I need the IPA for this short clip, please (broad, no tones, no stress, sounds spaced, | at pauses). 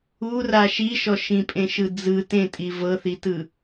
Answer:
u r a ʃ i ʃ ɔ ʃ ĩ pʼ ẽ ʃ ɯ d͡z ɯ t ẽ tʼ i v ɤ θ i t ɯ